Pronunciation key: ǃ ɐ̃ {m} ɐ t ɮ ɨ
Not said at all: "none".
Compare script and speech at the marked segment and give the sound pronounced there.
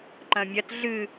mʲ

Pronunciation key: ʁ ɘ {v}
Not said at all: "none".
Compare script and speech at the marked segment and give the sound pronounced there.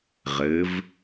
v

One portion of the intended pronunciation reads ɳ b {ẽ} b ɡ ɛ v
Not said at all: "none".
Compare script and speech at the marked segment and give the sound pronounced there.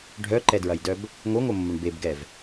e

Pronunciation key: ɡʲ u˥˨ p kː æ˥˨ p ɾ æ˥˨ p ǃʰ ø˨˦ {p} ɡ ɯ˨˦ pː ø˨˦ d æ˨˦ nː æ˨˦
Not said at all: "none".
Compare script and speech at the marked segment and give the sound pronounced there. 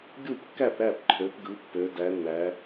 p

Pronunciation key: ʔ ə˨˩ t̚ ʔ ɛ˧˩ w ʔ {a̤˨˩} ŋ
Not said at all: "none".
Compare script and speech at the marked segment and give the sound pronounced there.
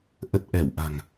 a̤˨˩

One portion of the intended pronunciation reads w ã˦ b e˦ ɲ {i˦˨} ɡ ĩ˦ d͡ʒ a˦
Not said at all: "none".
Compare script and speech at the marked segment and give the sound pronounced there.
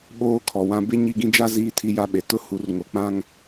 i˦˨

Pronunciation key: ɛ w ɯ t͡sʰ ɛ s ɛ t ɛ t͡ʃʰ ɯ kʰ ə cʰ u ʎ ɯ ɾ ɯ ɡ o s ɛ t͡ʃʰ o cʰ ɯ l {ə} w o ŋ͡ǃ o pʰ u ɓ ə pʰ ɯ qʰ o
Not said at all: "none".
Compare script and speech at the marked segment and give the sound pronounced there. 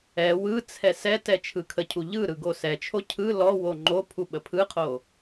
ɔ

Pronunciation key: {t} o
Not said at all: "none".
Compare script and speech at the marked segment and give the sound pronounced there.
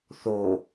θ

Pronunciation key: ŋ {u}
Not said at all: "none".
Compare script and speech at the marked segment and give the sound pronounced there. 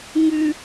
ʉ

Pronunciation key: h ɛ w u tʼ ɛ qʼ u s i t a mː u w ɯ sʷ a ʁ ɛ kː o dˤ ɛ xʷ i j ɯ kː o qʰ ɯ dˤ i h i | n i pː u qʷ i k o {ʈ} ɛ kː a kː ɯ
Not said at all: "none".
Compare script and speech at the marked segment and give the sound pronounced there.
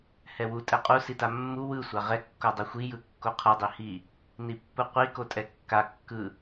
tʼ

